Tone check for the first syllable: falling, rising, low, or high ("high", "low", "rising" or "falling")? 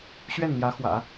falling